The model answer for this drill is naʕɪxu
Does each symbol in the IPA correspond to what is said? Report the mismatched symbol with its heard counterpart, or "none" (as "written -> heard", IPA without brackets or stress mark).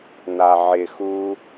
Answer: none